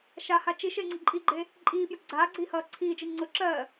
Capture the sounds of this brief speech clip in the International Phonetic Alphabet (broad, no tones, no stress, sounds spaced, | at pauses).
ʃ a h a t͡ʃ i ʃ e ŋ͡ǀ ə ǃʼ i ɡ͡ǃ e | ǃʼ iː p j ʊ ɡ͡ǀ aː ɡ͡ǀ iː h ʌː ǀʰ iː d͡ʒ i ŋ͡ǀ ʊ ǁ ɜ